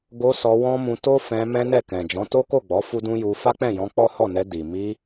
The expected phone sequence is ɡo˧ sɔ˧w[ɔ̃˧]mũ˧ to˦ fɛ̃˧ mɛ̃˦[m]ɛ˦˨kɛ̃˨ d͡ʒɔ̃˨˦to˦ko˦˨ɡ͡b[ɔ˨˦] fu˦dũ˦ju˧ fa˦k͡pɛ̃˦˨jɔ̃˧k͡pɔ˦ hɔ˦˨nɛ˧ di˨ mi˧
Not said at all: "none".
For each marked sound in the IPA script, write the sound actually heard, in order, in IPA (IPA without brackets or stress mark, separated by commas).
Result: ɔ̃˦, n, ɔ˨˦